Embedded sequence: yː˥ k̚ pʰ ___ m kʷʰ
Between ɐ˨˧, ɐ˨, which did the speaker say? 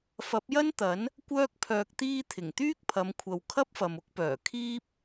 ɐ˨˧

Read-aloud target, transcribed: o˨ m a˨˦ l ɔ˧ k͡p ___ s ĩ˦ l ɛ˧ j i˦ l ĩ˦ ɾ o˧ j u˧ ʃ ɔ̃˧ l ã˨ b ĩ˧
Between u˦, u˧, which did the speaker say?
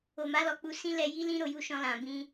u˧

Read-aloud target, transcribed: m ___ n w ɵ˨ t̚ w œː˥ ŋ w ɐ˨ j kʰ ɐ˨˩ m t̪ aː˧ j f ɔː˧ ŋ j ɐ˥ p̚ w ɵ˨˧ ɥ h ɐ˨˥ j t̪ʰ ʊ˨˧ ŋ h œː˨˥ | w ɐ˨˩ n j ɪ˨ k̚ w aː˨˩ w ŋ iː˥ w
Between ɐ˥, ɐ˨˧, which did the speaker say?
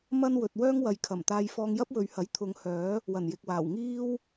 ɐ˥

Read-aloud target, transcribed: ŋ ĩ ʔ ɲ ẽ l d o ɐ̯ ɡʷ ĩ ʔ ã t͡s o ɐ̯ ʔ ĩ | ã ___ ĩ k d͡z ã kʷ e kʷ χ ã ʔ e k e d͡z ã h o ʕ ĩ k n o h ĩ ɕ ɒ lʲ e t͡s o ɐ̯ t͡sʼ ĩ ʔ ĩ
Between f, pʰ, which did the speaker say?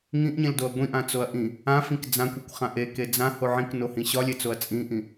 f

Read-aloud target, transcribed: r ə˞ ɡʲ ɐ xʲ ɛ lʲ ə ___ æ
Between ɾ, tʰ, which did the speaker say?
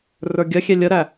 ɾ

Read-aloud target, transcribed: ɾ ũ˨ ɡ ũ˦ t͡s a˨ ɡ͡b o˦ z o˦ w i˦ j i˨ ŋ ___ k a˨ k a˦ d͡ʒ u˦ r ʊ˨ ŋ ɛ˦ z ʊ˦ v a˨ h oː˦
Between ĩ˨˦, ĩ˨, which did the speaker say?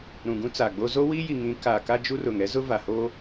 ĩ˨˦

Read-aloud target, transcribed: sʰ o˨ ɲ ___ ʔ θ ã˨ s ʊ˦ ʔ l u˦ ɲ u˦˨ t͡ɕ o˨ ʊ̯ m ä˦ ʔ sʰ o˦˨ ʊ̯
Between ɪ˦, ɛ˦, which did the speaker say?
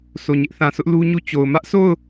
ɪ˦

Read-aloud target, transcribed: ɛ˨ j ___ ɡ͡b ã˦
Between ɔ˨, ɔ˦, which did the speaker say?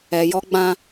ɔ˦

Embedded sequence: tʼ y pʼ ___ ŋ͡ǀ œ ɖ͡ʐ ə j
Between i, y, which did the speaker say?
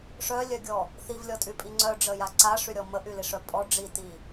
i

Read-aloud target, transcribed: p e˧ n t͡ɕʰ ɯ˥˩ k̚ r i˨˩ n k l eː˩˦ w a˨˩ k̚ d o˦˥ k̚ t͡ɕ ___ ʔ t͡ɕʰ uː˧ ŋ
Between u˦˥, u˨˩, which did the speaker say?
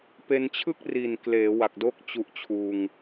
u˦˥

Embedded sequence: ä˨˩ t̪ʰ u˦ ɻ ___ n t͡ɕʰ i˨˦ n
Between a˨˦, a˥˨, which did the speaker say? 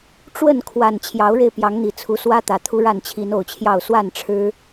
a˥˨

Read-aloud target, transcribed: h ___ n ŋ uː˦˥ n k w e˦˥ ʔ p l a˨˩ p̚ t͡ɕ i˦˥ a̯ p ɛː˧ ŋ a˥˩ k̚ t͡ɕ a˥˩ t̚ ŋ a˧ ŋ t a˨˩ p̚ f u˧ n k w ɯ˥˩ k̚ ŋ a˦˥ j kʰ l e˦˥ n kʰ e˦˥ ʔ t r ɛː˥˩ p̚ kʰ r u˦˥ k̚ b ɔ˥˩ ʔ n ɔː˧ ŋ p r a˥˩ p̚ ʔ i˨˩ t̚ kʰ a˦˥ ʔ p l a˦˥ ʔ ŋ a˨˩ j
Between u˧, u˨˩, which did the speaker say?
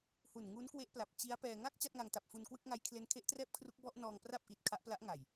u˨˩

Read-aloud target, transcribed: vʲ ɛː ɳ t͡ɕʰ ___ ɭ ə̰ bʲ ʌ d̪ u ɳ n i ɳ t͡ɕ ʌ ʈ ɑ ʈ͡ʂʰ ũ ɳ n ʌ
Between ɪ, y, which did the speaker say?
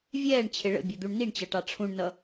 ɪ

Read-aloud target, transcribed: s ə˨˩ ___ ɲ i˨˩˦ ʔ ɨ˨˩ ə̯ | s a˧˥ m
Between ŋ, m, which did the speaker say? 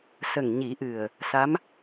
ŋ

